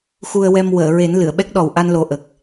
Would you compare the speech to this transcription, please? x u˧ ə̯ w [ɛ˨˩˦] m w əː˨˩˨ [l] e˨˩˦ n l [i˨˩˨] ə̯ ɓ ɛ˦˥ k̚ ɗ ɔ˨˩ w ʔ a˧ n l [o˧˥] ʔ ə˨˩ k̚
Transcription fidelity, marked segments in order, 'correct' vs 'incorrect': incorrect: ɛ˧, incorrect: ɹ, incorrect: ɨ˨˩˨, incorrect: o˨˩

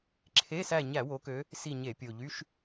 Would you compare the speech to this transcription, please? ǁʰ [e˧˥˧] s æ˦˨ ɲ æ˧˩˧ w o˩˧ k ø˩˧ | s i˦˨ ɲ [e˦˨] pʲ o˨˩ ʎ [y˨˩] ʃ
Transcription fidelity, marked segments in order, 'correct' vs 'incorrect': correct, incorrect: e˧˩˧, incorrect: y˧˥˧

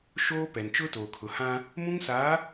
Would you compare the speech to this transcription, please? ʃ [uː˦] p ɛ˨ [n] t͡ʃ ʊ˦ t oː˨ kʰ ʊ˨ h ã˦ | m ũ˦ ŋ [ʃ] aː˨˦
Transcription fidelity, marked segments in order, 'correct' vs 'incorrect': incorrect: oː˦, correct, incorrect: s

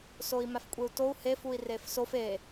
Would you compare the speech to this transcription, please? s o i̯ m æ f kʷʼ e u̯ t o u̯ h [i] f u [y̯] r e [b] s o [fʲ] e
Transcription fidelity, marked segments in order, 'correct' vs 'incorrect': incorrect: e, incorrect: i̯, incorrect: f, incorrect: f

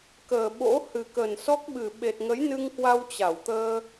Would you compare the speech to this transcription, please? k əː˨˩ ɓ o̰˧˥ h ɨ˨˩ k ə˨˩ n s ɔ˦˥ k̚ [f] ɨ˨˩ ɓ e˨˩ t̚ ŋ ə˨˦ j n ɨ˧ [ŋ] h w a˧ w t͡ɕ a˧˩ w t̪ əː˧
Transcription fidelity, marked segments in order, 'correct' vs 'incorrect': incorrect: ɓ, correct

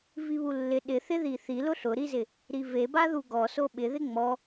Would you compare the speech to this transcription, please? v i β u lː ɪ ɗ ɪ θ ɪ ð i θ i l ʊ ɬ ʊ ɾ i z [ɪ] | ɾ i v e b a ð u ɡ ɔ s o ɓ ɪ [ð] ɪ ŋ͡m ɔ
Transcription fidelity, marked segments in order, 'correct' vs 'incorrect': correct, correct

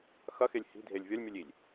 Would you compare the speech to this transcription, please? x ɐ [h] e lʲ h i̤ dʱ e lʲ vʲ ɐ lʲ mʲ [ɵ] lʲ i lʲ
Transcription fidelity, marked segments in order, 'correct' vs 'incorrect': incorrect: x, correct

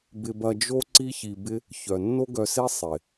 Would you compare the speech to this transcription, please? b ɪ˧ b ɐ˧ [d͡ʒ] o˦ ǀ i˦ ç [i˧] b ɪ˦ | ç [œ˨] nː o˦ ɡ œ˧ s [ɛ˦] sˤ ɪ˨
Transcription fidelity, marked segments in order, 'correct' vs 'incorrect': correct, correct, correct, incorrect: e˦

